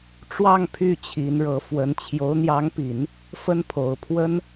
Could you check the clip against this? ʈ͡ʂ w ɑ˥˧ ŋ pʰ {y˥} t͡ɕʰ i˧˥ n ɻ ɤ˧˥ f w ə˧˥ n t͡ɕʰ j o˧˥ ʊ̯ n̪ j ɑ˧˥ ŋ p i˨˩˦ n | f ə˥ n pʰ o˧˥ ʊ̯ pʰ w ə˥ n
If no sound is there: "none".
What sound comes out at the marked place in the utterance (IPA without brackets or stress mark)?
y˥˩